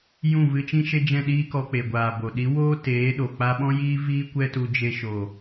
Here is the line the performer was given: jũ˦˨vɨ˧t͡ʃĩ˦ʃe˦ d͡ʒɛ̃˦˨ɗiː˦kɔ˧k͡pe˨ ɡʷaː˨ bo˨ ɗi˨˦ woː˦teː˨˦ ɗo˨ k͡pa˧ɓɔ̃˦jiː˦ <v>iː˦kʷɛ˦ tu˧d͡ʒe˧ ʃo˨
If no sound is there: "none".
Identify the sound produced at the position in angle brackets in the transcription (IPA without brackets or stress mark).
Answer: v